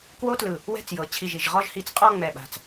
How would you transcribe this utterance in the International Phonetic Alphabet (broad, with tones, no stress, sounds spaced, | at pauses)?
k w o˥ t l ɯ˧˩ | w ɛ̤˥˧ t͡s j ɤ˩˧ t͡ɕʰ i˧˩ ʒ i˧˩ ʒ ʁ ɔ˥˧ ʒ h i˧ t͡s qʼ ɔ˥˧ ŋ͡m ɛ˧˩ ɓ a̤˧˩ t͡s